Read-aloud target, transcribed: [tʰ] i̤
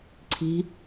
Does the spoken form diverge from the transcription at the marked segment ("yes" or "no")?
yes